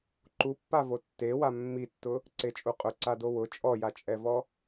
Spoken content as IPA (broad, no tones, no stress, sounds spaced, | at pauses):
ǃ u pː a v o tː e w a mː i tː ʊ | ǀ e t͡ʃʼ u qʼ ʊ ǀ a d o w ʊ t͡ʃʼ ɔ j a t͡ʃʼ ɛ v ɔ